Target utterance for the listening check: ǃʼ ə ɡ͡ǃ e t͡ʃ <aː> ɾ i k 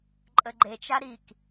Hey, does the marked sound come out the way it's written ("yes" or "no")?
no